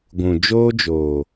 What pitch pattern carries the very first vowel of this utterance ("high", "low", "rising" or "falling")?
low